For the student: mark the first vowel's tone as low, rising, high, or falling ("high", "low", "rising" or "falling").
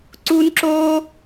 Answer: high